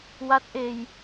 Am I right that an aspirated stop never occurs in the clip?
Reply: yes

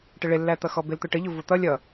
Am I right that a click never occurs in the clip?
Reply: yes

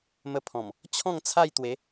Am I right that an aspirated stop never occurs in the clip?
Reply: no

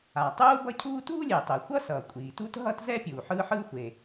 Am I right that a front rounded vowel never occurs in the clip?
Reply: yes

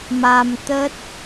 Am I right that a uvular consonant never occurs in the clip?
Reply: yes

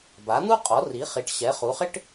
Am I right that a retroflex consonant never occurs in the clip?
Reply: no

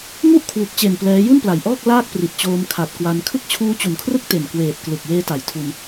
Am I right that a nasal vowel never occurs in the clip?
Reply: yes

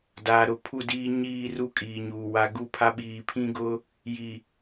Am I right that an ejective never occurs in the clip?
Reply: no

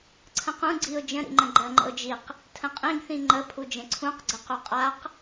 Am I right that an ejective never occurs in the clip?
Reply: no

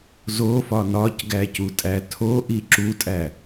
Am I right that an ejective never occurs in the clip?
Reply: no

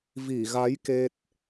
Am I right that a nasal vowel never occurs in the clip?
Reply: yes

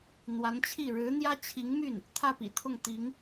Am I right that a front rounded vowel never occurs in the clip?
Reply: no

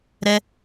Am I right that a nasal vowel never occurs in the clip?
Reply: yes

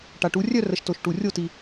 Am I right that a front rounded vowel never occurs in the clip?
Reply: no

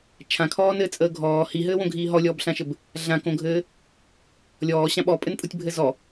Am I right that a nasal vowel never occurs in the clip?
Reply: no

